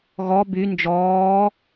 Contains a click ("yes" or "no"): no